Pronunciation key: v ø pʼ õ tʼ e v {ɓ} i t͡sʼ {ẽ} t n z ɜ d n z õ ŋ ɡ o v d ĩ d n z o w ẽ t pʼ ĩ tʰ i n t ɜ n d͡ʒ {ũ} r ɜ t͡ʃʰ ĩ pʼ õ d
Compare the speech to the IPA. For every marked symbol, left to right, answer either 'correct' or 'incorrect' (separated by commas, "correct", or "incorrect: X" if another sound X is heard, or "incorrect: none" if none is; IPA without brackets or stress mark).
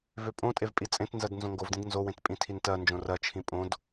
incorrect: pʼ, correct, incorrect: õ